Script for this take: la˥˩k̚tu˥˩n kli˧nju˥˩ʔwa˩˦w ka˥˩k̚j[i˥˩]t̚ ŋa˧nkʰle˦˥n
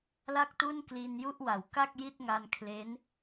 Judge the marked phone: correct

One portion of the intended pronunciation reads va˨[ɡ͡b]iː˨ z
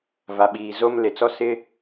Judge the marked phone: incorrect: ɓ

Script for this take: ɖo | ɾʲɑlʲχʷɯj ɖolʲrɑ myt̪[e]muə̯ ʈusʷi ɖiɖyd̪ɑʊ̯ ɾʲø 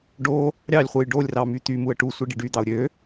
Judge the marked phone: incorrect: y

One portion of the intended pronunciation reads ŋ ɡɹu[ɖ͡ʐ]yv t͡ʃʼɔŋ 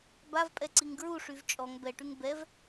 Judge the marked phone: incorrect: ʂ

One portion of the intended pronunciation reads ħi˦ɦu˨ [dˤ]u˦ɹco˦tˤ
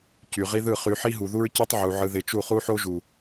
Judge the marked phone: incorrect: ð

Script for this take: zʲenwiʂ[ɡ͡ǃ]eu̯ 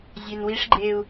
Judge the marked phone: correct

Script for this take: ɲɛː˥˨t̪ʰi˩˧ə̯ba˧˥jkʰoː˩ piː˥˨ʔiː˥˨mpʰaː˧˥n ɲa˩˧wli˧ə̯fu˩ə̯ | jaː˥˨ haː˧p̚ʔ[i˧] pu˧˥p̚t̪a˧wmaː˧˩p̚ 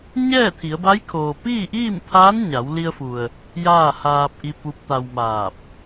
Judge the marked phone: correct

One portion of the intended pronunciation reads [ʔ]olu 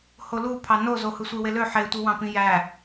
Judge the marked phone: incorrect: h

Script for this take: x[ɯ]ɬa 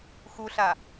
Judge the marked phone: incorrect: u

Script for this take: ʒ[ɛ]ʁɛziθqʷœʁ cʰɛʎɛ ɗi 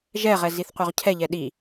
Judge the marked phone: correct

